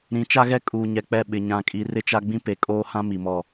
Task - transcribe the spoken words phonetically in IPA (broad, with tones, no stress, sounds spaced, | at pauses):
ɾ ĩ˨˦ t͡ʃ a˦ ɣ ɛ˦ kʼ uː˨ ɲ ɛ˨ k͡p ɛ˦˨ ɓ ɪ˨ ɲ ã˨ kʼ i˨ r ɪ˦ t͡ʃ a˦ ɡ͡b ĩ˦ p e˨ kʼ oː˦ h ã˦ m i˨ m ɔ˦˨